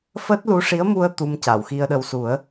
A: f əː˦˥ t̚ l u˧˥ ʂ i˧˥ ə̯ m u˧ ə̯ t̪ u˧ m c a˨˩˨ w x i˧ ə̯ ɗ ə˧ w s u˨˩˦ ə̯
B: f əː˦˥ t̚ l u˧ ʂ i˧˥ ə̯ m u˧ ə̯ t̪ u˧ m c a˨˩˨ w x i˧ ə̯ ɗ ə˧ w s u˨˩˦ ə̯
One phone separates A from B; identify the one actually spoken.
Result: A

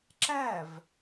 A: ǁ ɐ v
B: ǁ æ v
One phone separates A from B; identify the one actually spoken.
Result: B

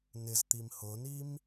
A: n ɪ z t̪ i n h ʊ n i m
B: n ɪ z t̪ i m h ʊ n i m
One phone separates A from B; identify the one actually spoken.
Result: B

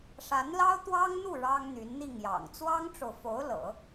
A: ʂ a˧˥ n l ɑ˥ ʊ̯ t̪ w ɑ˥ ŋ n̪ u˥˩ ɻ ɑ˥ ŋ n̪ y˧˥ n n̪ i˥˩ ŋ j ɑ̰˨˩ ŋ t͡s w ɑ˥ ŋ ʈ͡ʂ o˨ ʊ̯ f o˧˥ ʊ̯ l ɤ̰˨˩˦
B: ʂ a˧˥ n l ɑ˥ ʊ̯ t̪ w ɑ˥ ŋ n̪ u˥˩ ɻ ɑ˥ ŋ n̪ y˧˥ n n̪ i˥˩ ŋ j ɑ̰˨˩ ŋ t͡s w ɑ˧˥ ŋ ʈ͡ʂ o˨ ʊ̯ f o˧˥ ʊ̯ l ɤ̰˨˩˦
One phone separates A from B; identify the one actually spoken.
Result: A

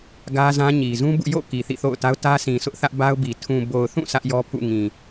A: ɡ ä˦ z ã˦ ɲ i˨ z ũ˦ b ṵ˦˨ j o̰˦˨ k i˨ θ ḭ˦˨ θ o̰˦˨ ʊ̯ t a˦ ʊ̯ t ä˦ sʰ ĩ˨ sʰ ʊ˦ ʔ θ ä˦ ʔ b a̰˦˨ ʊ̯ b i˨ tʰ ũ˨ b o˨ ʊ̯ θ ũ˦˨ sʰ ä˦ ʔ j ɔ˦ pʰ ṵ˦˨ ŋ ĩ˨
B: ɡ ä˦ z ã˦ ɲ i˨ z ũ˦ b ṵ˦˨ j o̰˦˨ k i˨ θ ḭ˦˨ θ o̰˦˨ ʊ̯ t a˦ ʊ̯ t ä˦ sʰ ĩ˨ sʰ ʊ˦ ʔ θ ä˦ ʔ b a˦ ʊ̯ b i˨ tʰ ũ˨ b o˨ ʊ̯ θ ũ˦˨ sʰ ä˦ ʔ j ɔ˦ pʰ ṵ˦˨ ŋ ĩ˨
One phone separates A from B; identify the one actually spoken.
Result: B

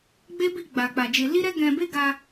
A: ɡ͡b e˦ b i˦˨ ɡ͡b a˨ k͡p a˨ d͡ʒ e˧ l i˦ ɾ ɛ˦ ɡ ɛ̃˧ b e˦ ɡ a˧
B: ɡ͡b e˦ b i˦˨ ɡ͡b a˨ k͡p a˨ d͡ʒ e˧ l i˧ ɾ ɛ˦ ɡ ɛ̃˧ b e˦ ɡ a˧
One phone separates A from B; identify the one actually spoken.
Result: A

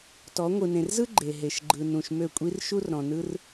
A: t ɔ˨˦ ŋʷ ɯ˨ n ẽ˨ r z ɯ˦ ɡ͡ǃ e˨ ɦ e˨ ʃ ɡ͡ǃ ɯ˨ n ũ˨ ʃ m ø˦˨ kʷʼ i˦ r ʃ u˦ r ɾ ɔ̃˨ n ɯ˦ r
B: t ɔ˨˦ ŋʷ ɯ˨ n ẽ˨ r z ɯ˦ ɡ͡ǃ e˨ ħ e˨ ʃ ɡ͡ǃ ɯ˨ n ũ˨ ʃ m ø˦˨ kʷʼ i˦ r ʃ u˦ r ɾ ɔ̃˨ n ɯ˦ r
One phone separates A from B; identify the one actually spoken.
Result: A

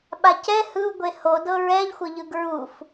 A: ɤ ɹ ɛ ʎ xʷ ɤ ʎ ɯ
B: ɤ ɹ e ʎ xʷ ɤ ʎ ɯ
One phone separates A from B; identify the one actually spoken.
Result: A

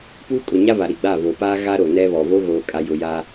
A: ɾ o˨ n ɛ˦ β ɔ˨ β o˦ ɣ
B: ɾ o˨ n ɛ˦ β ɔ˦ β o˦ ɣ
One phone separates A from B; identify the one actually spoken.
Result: A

